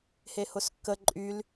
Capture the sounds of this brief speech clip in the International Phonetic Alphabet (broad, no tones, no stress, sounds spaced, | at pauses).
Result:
h e h ʊ s kː ə ǃʼ y l